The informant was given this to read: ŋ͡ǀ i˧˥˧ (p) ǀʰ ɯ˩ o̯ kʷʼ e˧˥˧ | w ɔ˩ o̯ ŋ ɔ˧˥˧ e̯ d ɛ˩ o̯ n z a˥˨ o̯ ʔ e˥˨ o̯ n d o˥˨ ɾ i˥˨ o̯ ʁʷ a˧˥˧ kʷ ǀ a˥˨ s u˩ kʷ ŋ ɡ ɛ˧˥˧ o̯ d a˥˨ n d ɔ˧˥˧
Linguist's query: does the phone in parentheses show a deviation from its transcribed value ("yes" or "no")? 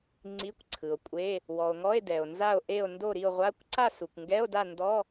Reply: yes